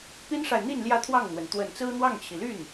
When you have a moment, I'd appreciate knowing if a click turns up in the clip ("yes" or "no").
no